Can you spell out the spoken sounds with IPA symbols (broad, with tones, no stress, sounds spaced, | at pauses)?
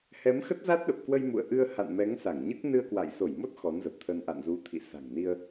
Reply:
h ɛ˨˦ m x ə˦˥ t̚ z a˦˥ t̚ ɗ ə˨˩ p̚ k w ə˧ j m ṵ˧˨ ə̯ ʔ ɨ˧ ə̯ h a̰˧˨ n m ɛ˨˦ ŋ s a˧˩ ŋ ɲ ɨ˦˥ k̚ n ɨ˧ ə̯ k w a̰˧˨ j s o˧˩ j m o˦˥ t̚ x ɔ˨˦ n z ə˨˩ p̚ t̪ʰ ə˧ n ʔ a̰˧˨ n z u˨˦ t̪ʰ ḭ˧˨ s a̤˨˩ ŋ n i˧ ə̯